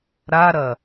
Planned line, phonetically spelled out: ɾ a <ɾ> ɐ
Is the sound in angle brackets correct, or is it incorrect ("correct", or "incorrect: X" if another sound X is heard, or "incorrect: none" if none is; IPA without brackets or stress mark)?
correct